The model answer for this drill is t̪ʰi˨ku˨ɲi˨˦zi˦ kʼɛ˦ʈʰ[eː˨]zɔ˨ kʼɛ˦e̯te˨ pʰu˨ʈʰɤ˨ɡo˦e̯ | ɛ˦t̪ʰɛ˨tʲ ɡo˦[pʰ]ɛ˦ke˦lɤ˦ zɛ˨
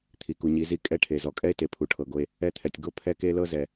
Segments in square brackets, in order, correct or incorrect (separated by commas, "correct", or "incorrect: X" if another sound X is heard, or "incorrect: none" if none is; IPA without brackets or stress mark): incorrect: e˨, correct